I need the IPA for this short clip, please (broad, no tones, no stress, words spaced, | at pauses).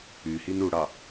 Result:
yhin uɽɑ